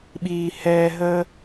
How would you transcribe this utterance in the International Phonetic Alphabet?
ɓ iː˨ h ɛː˨ ɦ əː˧

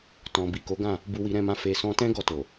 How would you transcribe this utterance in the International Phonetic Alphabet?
t ɔ̃˨ b i˨ k o˨˦ ɡ ã˦˨ | b u˧ w i˧ ɾ ɛ̃˧ m ã˧ f e˨ s ɔ̃˧ t ɛ̃˦ ɡ ɔ˦˨ t o˨

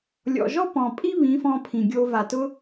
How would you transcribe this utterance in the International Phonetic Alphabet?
lʲ ɔ̰˨ ʒ ɔ˦ p ɔ̃˨ pʼ i˦ β ĩ˨˦ f ɔ̃˧ pʰ ĩ˨ ɡʲ o˧ v a˨ t ʊ˧

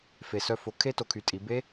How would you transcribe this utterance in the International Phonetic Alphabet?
f e˨˩ s œ˧ f o˩˥ kʰ e˦˥ t o˩˧ kʰ y˩˧ tʼ i˩˧ b e˦˥

